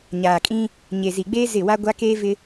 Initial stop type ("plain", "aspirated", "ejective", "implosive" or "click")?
ejective